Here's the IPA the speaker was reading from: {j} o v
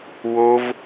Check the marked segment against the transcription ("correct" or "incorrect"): incorrect